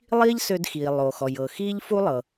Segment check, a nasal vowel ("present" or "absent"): absent